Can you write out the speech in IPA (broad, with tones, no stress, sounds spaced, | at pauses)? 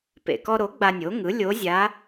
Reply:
p ḛ˩ k ɔ˧ ɾ o˩˥ ɡ͡b a˧ nʲ o˩˥ ŋ ɯ˩˥ lʲ o˧˥ zʲ a˧˥